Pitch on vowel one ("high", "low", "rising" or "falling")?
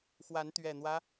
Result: rising